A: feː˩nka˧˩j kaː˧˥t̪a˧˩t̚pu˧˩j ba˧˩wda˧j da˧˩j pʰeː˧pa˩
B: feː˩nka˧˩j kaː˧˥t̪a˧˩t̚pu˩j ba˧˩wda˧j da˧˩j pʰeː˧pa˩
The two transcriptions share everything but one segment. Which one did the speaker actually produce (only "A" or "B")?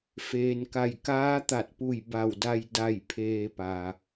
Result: A